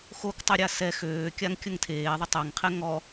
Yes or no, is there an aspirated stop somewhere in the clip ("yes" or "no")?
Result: yes